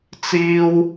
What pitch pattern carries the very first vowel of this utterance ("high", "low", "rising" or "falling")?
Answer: high